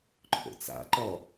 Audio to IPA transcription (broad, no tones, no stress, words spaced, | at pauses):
ǃʰo̰t͡sa̰ǃɔ